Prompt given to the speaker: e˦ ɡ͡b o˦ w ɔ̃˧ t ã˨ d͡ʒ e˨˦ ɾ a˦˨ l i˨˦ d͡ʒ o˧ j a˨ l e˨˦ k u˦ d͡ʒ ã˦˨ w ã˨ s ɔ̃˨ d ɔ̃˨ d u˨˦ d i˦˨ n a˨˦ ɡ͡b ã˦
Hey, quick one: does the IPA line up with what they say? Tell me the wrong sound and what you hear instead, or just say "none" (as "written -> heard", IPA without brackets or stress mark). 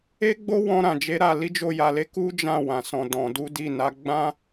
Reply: t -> ɾ